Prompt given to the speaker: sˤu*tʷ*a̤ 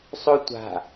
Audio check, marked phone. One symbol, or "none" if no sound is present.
tʷ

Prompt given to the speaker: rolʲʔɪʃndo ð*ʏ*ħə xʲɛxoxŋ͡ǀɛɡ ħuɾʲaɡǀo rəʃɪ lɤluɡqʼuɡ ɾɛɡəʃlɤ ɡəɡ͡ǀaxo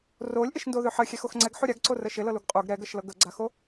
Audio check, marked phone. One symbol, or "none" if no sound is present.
ʏ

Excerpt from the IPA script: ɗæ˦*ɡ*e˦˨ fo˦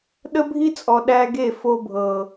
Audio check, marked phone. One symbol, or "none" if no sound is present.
ɡ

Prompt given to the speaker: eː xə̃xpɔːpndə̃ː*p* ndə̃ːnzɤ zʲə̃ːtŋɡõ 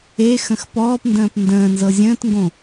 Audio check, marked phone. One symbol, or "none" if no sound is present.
p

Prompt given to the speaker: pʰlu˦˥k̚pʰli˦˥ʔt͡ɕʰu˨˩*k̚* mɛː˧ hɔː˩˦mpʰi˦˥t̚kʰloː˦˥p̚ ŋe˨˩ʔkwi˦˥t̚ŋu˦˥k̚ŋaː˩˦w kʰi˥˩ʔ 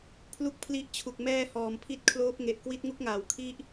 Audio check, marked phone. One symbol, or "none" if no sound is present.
k̚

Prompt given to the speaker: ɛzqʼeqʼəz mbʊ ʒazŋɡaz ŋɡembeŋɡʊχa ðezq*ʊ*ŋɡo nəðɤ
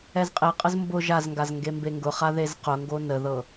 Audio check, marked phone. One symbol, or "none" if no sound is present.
ʊ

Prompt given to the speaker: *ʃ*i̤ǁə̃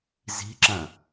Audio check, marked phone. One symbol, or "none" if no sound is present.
z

